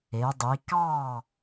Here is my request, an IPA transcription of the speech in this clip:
e˩˧ dˤ i˩˧ k ɑ˥˨

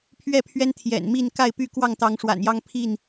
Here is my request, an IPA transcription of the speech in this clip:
pʰ ɥ ɛ˥˨ pʰ ɥ ɛ˦ n t̪ʰ j ɛ̰˨˩ n m i˥˨ n k a˥˨ ɪ̯ p y˥˨ k w ɑ˥˨ ŋ t̪ ɑ˨˦ ŋ ʂ w a̰˨˩ n j ɑ˦ ŋ pʰ i˥˨ n

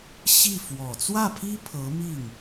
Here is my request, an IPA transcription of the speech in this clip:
ɕ i˥˩ f w ɔ˨˩ t͡s w ä˥˩ pʰ i˥ pʰ ɤ˧˥ m i˥˩ ŋ

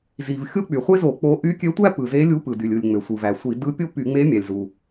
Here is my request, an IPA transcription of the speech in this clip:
z i˩ v xʲ o˥ k͡p y˩ χʷ e˥ z o˧˩˧ k͡p o˧˥ ʔ y˧˥ kʲ ø˧˥ tʷ æ˥ p ɯ˩ z e˧˥ lʲ u˧˥ p ɯ˩ d y˩ lʲ ɯ˩ lʲ ŋ͡m ø˩ sʷ ɯ˩ v æ˩ sʷ i˧˩˧ d ɯ˧˥ pʲ o˥ p y˧˩˧ ŋ͡m e˧˥ mʲ æ˩ lʲ z u˩

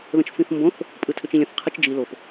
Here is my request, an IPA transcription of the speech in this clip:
ð ə̃ t͡ʃ f ĩ θ m b õ θ | pʼ ɯ tʰ ʏ t͡ʃ ĩ lʲ ə̃ θ qʰ ɯ t͡ʃ d͡ʒ i l o p

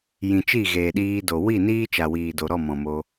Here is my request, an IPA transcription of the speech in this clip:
j ĩ˨ t͡ʃ i˦˨ ɣ eː˨ ɗ iː˧ d o˨ w i˦˨ n iː˦ t͡ʃ a˨ w iː˨ d o˨ ɾ ɔ˦˨ m ɔ̃˨ m o˧

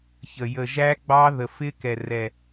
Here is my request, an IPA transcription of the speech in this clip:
ç ə˨˩ j ə˨˩ ʒ æ˦˥ ɡ͡b ɑ˦˥ ð ə˨˩ f ɪ˦˥ k ɛ˨˩ r ɛ˨˩

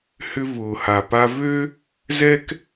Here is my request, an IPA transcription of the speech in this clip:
h ʏ˦ v ʊː˩ h a˩ p a˦ v ø˥ | z ɛ˥ k

